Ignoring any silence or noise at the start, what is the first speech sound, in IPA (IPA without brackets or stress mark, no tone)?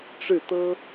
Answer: ʈ͡ʂ